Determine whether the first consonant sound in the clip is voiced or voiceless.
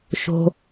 voiceless